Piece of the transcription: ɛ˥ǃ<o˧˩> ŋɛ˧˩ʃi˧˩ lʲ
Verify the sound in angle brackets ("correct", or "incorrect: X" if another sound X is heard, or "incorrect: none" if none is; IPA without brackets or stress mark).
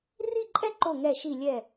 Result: correct